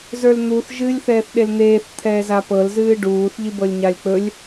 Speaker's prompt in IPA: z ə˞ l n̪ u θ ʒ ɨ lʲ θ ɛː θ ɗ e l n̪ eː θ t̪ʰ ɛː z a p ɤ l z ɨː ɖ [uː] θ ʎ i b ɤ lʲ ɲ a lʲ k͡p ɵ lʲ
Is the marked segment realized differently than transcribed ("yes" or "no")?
no